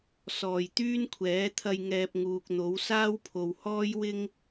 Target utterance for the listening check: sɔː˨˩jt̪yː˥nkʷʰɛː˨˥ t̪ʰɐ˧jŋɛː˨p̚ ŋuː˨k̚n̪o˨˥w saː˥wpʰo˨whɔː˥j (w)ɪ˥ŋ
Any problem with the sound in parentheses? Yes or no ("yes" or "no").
no